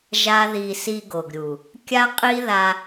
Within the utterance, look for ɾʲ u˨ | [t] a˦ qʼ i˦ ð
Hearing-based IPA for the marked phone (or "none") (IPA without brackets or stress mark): kʲ